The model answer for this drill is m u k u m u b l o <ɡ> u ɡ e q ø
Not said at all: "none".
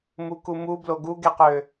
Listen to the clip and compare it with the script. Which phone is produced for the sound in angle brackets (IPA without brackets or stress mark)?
ɡ